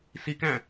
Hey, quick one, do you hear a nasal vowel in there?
yes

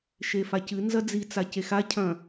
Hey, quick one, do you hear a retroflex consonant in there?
no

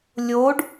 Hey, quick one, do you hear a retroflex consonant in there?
yes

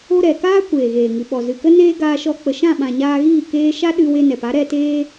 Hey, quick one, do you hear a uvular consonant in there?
no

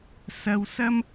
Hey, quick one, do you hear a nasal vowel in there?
no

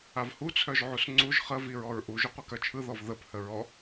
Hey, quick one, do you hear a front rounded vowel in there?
yes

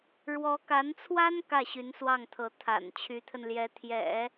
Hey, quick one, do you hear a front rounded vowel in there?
yes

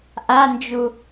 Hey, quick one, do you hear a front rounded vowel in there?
no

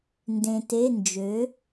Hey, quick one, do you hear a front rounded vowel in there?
yes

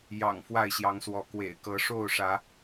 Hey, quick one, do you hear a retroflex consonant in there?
yes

